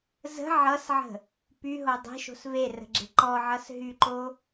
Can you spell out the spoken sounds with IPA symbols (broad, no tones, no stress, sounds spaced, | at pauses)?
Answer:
z ə̤ ʕ ʌ s ʕ ə̤ | p y ɦ o dˤ e̤ ʃ o̤ s v e r ə̤ ɡ͡ǁ e̤ ǃ ɔ ʕ ʌ s ɦ y ǃ o